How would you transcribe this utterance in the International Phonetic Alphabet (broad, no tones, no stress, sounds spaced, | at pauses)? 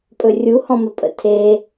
pʼ ɵ rʲ u h ɔ̃ m ə pʼ ə̰ tʰ e